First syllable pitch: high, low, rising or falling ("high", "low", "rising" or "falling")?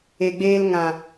low